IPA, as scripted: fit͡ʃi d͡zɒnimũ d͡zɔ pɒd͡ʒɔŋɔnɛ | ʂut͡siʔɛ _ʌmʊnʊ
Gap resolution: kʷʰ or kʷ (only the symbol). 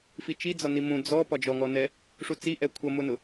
kʷʰ